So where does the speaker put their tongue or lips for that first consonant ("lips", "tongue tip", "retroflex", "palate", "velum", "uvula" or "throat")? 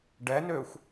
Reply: retroflex